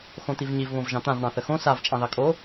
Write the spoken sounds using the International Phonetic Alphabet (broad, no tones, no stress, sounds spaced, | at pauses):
x õ t̪ i v ɲ i v β õ v ʒ ɑ̃ t̪ ã v ɳ ɑ̃ θ ə x õ s a v t͡ʃʼ ɑ̃ ð ɑ kʼ o